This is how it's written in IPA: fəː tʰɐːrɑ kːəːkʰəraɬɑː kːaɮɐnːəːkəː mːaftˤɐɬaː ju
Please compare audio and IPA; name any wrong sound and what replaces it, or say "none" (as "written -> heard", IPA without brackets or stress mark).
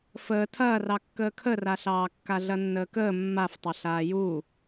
u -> uː